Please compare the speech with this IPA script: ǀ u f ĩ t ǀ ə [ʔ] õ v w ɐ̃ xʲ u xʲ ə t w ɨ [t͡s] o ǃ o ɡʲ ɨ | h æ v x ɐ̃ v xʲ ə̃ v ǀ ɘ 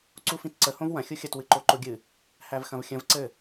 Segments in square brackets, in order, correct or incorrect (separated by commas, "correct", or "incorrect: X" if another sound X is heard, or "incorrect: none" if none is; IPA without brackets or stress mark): incorrect: h, incorrect: ǃ